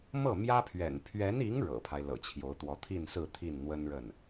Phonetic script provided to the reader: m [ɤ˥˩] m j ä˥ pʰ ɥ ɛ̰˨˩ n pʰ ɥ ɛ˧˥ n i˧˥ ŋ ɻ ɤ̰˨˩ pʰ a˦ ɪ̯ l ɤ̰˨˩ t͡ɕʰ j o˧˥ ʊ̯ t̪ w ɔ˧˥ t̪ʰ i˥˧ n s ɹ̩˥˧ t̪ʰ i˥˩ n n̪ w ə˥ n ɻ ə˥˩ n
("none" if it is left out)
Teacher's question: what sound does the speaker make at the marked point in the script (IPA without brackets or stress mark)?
ɤ˥˩